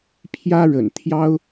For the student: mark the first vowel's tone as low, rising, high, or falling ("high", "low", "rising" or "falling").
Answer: high